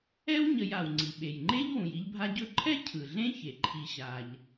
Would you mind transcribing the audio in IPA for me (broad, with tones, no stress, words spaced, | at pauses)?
ɛ˥wɲə˨j a˩wŋ͡ǀi˩ɓe˩jŋ͡ǃe˥ʎ wũ˩ji˦ʎbʱa˦ ɟɵ˦ǃʰɛ˥ cʰɯ˩ɮẽ˥çe˩ ǃʰi˨ɕa˩ʎ